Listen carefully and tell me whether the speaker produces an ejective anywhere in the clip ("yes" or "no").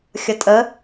yes